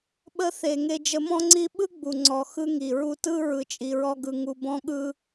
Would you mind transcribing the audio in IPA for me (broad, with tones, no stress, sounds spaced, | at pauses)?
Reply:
ɓ ə˧ θ e˨ ŋ e˧ d͡ʒ ə˧ m ɔ̃˦ ŋ͡ǀ i˦ ɓ ɯ˦ ɡ͡b u˨ ŋ͡ǀ ɔ˨ x ɯ˧ ŋ i˨ ɹ u˧ t ɯ˦ ɹ ɯ˧ t͡ʃʼ i˧ ɹ ɔ˦ ɡ ɯ˧ ŋ u˧ b ɔ̃˦ ɠ ɯ˦